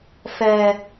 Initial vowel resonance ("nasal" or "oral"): oral